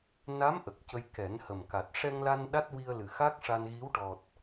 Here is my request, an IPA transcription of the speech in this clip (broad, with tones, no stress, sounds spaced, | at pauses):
n a˧˥ m ʔ ə˨˩ k̚ c ə˧ j k ɛ˨˩˦ n h ə˨˩ m k a˨˩ t̚ ʂ ɛ˧ ŋ l a˧ n ɗ a˦˥ t̚ w i˧ ə̯ l ɨ˨˩ x a˦˥ k̚ ʂ a˧ n ɣ i˧˥ w ʈ ɔ˨˩ t̚